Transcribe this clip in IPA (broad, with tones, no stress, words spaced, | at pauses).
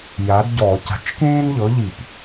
ja˨˥dɟɔ˧˩˧ ca̤˨˥t͡ʃkẽː˥nʎɤ˨˥ʎi˧˩˧p